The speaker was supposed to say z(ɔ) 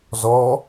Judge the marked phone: correct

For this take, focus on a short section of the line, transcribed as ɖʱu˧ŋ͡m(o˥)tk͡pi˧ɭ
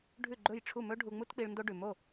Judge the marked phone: incorrect: u˥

